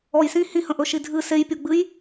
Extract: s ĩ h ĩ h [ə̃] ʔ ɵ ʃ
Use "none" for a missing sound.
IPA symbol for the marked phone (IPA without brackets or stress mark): ə̃